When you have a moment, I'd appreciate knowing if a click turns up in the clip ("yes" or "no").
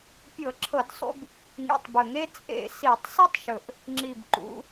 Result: yes